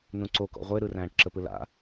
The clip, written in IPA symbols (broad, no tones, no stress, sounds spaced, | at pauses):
n ũ ǀ o k ɔ̰ ʁʷ e ɾ ɯ r æ̃ː ʈ ǁ ə p ɯ l a̰